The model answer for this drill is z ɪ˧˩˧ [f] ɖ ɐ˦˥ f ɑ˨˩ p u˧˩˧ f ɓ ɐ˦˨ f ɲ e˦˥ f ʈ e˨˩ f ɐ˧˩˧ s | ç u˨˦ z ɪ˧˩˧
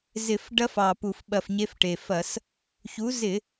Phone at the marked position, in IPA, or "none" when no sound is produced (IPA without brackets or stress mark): f